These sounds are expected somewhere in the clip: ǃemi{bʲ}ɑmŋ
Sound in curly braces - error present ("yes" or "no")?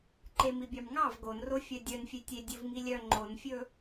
no